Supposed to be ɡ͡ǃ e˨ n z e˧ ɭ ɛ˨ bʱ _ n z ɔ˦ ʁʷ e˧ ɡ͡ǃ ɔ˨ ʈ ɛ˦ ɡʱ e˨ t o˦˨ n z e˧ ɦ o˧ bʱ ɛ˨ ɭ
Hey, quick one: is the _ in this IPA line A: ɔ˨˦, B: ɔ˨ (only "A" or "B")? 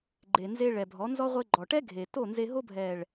A